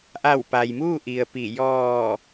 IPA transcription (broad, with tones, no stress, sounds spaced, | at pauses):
ʔ a˧˩ w p a˩ j m uː˥˨ ʔ i˩ ə̯ p i˧˩ j ɔː˧˩